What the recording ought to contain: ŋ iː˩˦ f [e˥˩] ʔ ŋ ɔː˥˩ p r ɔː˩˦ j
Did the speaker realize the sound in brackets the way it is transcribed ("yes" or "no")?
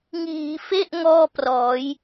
yes